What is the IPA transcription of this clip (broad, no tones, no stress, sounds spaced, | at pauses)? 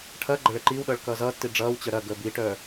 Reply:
ʈʰ ɐː ɡ͡ǃ ɐ ɭ ɛ ǃ iː w ɗ ʌː ɭ k ʌː z ʌː tː i ɖ͡ʐ ʌː w t͡ɕ œ ɾ ɐ ɡ əː b i ʈ œː